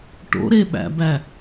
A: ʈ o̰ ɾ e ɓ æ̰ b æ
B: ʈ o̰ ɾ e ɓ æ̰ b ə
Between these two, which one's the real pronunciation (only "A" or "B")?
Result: A